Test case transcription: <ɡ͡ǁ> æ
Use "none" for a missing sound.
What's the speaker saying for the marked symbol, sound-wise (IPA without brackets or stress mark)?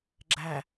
ɡ͡ǁ